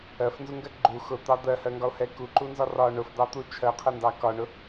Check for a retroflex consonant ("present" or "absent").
present